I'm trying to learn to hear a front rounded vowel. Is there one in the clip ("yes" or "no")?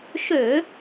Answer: yes